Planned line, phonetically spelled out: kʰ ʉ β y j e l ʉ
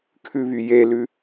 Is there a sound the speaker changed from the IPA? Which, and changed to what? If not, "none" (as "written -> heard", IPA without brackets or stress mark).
none